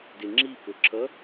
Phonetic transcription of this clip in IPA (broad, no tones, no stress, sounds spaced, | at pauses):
d ɪ ŋ͡ǁ i p ʊ ǁ ʌ